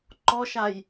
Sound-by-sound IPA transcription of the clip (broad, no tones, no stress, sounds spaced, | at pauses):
ǃ ɔ ʃ a j